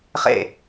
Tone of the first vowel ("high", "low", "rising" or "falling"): falling